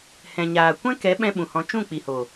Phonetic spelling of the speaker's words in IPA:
h ɛ̃˨ ɲ aː˨ kʷ ɛ̃˦ k ɛ˨˦ ɓ ɛ̃˦ ɓ ũ˨ h ɔ̃˧ t͡ʃ ũ˦˨ k͡p i˨ h o˨

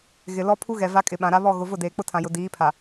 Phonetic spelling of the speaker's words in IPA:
ɣ ɪ˨ l ɔ˦ pʰ u˦ ɣ ɛ˨ v a˦ kʼ ɪ˨ ɓ ã˨ ɾ a˦ β ɔ˦˨ ɣ ʊ˨ v ʊ˦˨ d eː˨ k͡p ʊ˦ tʰ ã˨ j ʊ˨ d iː˨˦ pʰ a˨

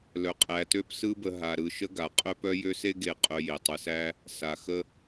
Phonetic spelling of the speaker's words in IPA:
l œ˨ qʼ æ˨ t ø˦ p s ɯ˦ b ə˨ ɦ a˨ ɾ ɯ˨ ʃ ə˥ ɡ a˩ qʼ œ˥ p œ˥ j ø˥ s e˥ ɡ e˨ qʼ œ˨ j e˩ tˤ ɯ˨ s æ˥ | s a˩ x ə˦

